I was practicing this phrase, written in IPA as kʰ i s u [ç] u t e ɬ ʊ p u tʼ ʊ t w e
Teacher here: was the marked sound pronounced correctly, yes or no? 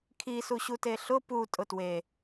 no